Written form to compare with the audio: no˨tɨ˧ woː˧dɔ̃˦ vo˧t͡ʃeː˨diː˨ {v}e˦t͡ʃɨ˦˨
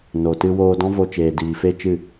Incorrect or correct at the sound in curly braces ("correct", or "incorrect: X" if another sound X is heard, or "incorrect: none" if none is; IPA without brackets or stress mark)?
incorrect: f